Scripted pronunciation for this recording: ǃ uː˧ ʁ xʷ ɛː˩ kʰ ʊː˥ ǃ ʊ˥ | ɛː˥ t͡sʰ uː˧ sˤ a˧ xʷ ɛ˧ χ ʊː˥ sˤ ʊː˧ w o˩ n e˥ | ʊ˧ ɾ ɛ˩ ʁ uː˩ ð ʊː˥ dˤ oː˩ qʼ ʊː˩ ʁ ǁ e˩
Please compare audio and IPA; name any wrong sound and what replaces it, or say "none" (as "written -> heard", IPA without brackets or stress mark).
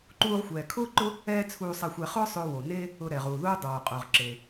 none